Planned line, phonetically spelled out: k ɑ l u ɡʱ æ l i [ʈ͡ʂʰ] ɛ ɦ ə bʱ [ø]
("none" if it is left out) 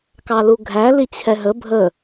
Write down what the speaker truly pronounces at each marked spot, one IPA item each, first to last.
t͡ɕʰ, ə

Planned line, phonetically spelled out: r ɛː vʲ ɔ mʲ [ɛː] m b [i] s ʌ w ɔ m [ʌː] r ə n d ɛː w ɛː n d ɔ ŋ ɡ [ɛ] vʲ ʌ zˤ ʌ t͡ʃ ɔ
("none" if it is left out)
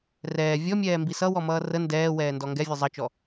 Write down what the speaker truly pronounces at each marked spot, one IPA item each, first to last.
ɛː, i, ʌː, ɛ

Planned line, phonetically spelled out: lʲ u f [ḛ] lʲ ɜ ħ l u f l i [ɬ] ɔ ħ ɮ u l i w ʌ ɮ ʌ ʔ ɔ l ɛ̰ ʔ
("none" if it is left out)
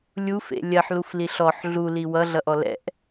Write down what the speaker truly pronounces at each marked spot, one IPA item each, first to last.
ḛ, ɬ

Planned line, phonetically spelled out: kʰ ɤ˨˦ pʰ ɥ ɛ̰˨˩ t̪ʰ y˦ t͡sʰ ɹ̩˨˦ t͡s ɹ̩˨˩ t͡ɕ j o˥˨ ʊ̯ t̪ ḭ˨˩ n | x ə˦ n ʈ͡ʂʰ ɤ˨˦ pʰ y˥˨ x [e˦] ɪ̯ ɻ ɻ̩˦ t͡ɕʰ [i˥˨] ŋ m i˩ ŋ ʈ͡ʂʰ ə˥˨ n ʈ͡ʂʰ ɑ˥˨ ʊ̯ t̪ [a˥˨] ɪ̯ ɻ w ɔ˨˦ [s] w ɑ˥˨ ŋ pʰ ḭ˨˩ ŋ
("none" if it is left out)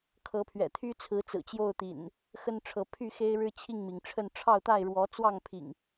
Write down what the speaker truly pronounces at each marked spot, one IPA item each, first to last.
e˦, i˥˨, a˥˨, t͡s

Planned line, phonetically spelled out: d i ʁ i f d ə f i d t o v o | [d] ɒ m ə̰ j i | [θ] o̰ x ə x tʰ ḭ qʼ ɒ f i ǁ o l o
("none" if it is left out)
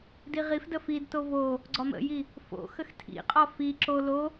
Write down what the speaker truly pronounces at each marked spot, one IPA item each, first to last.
ɡ͡ǀ, f

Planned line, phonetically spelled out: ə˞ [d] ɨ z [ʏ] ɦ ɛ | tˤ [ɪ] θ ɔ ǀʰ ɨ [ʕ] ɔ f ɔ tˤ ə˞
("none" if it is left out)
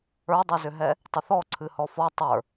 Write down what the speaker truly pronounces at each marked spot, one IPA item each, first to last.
dˤ, ʏ, ɪ, h

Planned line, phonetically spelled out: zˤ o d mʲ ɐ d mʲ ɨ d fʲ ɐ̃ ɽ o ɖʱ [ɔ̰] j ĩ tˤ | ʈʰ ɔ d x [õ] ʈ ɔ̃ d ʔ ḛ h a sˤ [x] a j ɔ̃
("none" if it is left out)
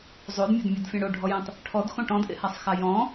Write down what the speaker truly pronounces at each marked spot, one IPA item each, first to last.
ɔ, õ, x

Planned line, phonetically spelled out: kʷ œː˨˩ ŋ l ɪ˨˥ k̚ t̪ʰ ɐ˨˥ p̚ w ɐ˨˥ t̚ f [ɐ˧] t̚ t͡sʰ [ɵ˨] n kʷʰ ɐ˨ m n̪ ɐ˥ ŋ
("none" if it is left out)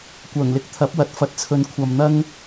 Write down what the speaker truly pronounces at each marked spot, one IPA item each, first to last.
ɐ˨, ɵ˨˧

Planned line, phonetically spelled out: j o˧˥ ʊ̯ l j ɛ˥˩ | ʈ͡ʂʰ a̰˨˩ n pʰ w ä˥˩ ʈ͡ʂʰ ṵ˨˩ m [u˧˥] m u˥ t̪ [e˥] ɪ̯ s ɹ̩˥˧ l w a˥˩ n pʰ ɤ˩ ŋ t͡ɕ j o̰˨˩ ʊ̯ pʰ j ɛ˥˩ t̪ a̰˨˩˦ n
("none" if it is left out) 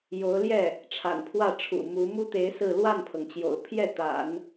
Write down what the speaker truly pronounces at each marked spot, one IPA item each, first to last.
u˧˥, e˧˥

